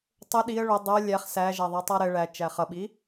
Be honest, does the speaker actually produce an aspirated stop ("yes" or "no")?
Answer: no